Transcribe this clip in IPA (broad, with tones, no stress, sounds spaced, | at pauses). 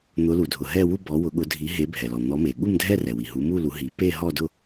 n̪ ʊ˨˦ l u˩ dʱ ʊ˩ ɦ ɛ˥˧ w u˥˧ b ɔ˨˦ w ʊ˨˩˦ ɠ ʊ˨˦ dʱ i˨˦ ɦ e˨˦ bʱ ɛ˩ l ɔ˩ n̪ ɔ˨˦ m e˩ ɠ u˥˧ m dʱ ɛ˥˧ r ɛ˩ w i˩ ɦ u˨˦ m u˥˧ l u˨˦ ɦ i˨˩˦ p e˥˧ ɦ ɔ˥˧ d ʊ˥˧